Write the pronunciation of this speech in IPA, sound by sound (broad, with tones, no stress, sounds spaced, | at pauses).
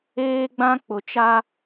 eː˦ ɡ͡b ã˦ k͡p ʊ˨ t͡ʃ a˦